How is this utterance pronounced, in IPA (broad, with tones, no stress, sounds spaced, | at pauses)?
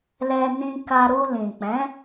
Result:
l ɛ˧ n ĩ˧ k a˧ ɾ u˧ l ĩ˨ k͡p ɛ̃˨˦